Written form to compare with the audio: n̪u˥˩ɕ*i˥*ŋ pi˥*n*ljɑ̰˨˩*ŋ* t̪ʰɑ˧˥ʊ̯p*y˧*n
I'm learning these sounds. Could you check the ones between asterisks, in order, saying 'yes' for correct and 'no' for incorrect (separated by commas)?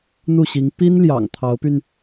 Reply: no, yes, yes, yes